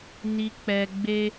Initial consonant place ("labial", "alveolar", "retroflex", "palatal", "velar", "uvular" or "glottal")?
alveolar